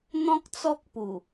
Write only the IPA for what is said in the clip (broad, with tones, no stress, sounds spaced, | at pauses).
n̪ ɔ̃˦ k̚ t͡s ɔ˦ k̚ p u˨˩